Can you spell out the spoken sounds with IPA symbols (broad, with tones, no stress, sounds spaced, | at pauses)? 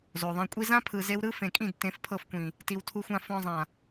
z o˨ ðˤ ẽ˧ kʷʼ i˦ z ã˦ pʰ ɯ˨ z e˧ w ɾ ɯ˦ f ẽ˨ kʼ ĩ˦˨ d t ẽ˨˦ f pʰ ɤ˧ f kʷ ĩ˨ | t i˧ w tʰ u˦ xʷ ã˦ f ɔ̃˧ zˤ ã˨